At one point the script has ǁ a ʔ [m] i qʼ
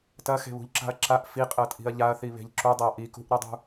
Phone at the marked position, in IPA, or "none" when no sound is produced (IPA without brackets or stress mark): f